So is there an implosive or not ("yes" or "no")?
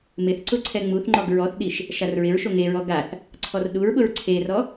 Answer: yes